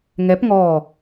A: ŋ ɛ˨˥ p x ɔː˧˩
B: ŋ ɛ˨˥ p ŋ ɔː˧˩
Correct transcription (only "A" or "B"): B